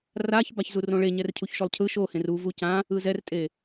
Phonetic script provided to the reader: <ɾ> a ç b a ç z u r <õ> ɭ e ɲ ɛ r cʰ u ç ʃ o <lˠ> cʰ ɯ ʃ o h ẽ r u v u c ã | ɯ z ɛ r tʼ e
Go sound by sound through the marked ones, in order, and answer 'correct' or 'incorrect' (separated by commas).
incorrect, correct, correct